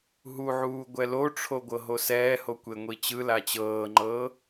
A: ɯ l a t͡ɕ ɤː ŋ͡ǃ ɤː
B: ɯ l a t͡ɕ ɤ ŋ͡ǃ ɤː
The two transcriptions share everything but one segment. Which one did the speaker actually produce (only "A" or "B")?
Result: A